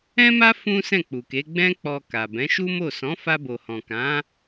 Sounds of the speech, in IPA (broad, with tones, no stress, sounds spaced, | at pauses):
ɛ̃˦ m a˦ f ũ˦ s ɛ̃˦˨ k͡p u˨ k e˨˦ ɡ͡b ɛ̃˦ k͡p ɔ˧ k a˨ b ɛ̃˨˦ ʃ u˦ m o˦˨ s ɔ̃˨˦ f a˧ b o˨ h ɔ̃˨ k ã˨˦